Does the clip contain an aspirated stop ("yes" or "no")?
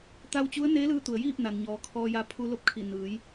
yes